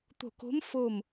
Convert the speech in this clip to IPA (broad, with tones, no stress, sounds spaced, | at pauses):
t̪ o̤˧˩ k o̤˧˥ m f o˧˩ m